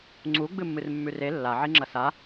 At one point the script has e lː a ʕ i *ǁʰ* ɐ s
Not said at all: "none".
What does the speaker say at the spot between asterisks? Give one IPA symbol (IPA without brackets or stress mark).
ŋ͡ǁ